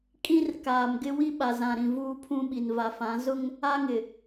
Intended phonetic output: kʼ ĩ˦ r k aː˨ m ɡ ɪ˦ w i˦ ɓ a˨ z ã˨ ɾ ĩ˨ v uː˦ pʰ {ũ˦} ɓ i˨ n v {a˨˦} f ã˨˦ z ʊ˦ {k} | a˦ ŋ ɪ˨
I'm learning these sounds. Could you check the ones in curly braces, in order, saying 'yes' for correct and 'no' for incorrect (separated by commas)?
yes, no, no